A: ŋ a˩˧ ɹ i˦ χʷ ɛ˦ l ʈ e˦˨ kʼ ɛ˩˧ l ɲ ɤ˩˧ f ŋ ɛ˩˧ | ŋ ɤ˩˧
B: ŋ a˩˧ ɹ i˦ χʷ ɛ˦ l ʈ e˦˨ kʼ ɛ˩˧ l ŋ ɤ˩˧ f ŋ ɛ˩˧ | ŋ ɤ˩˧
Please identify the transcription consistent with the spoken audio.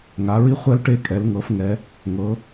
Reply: B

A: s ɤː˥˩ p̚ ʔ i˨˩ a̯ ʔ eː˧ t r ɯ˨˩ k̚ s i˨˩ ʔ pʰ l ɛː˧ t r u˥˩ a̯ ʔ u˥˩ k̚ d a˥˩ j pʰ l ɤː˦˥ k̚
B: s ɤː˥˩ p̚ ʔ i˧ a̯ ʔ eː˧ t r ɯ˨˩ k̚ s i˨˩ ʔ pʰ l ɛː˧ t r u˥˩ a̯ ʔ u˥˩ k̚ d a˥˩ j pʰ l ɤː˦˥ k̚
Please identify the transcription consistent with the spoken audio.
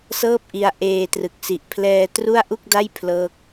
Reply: B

